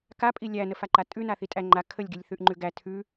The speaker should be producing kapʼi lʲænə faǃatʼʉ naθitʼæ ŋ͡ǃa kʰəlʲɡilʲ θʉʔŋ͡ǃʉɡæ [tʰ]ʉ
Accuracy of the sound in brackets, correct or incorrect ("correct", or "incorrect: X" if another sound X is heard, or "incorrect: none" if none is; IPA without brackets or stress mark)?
correct